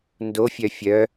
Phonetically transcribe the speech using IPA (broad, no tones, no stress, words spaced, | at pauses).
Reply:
ndofʲœ fʲœ